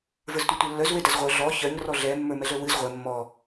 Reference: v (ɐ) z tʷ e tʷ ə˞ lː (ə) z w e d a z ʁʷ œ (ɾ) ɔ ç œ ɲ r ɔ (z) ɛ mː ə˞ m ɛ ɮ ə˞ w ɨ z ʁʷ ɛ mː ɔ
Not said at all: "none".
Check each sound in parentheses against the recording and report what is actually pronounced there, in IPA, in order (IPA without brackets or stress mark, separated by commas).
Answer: ə˞, œ, ɮ, ɮ